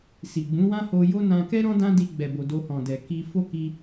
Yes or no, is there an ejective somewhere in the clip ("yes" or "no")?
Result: no